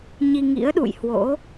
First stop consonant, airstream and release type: implosive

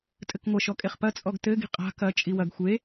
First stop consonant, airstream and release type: ejective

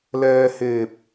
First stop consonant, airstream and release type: plain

